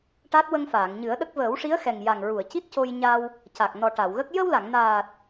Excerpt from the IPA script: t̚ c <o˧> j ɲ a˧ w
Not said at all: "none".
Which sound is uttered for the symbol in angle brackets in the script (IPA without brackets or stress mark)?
o˧